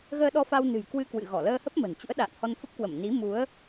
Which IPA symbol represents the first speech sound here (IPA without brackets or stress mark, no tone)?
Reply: ɣ